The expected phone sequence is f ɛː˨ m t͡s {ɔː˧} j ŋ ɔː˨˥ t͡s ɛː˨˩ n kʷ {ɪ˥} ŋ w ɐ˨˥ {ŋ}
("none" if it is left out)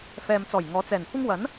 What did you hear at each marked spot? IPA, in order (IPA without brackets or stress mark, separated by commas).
ɔː˨˩, ɪ˥, n